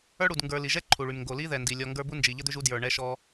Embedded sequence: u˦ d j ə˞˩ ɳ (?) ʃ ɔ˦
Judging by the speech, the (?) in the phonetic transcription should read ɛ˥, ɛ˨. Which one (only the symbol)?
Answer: ɛ˥